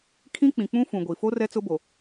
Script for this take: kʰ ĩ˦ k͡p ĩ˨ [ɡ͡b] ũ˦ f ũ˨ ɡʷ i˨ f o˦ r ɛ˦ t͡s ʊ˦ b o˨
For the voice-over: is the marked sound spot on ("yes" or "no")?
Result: no